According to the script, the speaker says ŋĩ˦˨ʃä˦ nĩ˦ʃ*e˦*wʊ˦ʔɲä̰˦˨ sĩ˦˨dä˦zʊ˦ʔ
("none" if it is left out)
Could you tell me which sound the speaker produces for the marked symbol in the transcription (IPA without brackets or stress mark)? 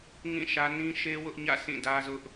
e˦